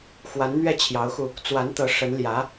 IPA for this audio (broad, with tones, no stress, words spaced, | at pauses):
xwa˧˥nn̪ɥɛ˥˩t͡ɕʰjɑ˧˥ʊ̯xu˧ | t͡swa˧˥nt̪ɤ˧˥ ʂə˧˥nljä˧˥